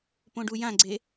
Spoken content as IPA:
põɖujãɡ͡ǀe

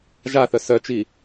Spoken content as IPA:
ʒaθœ sœt͡ʃi

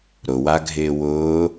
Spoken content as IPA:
ɾʊwaɡʱɪː wʊː

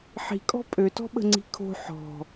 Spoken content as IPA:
ħi̤kʼɔ̤ pʼøtɔ̤ɓə̤ŋ͡ǀi̤ kʰo̤ ħɔ̤

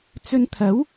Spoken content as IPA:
t͡sɵ˧nt̪ʰɐ˨˥w

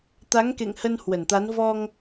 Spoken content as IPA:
t̪a˨˦ŋkḛ˧˨ŋhə˧n hwə˧˩nt̪a˨˦n vɔ˧ŋ

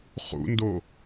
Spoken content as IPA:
χṵndo

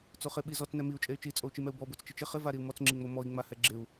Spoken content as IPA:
t͡soχɪ ɓizɔt͡s nɛmiu̯ t͡ʃʼey̯t͡ʃi t͡sʼou̯t͡ʃimɛu̯bɔ bot͡st͡ʃɪt͡ʃɪ χɪ vaɾiu̯mɔt͡s ŋ͡ǁiŋ͡momɔi̯ ŋ͡mahɛɡ͡ǁɪu̯

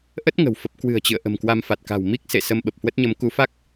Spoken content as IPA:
ʔə˦˥t̚ ŋə̤˨˩wfə˦˥p̚ kwɨ̤˨˩ə̯t͡ɕɨ̰˧˨ə̯ ʔə̤˨˩mkwa˧mfa˨˩t̚ka̤˨˩w mi˦˥k̚sḛ˧˨ sə˧mɓə˨˩p̚hwə˦˥t̚ɲə˨˦m ku˨˦fa˦˥k̚

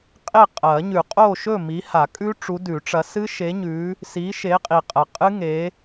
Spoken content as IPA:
qʼe˥˨qʼɐ˨˩˦ɲʉ˨˩˦qʼo˥˨ ʃɵ˥˨mi˨˦ha˨˩˦kʼʉ˦˥ ʈ͡ʂu˨˦dʉ˨˩˦ʈ͡ʂɐ˨˦ sɨ˦˥ʃe˨˦ɲʉ˨˦ | si˨˦ʃe˨˦qʼi˨qʼɐ˨ qʼɨ˦˥ŋe˨˦

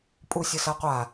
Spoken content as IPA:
pʼusʲɘsɐqʷa

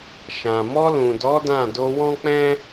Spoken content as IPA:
ʃã˨ mɔ˧lũ˨dɔ˨˦ dã˦˨ do˧wɔ̃˦k͡pɛ̃˦

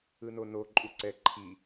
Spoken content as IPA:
ɯnono ǃʼuǀɛ ǃʰi

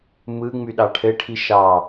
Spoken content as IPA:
mɯ ŋ͡myɗɑʈʰɘʈʰi ʃɑ

